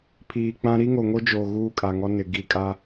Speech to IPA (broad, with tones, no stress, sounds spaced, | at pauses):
pʰ iː˨ k͡p ã˦ ɾ i˦ ŋ o˨ ŋ o˦ d͡ʒ oː˨ ɣ uː˦ kʼ a˨ ŋ ɔ˦ n ɪ˨ ɡ i˦˨ kʼ a˦